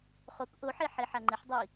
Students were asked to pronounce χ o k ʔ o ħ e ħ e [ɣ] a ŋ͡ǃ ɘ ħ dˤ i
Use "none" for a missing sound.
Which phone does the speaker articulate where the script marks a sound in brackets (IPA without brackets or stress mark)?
ħ